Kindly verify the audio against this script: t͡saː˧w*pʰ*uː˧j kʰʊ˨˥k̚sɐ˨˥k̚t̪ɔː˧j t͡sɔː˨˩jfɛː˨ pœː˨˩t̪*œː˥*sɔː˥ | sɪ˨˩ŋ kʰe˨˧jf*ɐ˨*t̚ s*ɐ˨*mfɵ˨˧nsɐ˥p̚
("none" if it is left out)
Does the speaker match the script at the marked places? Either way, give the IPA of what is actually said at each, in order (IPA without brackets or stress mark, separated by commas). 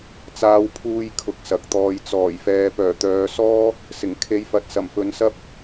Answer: pʰ, œː˨˧, ɐ˨, ɐ˨˩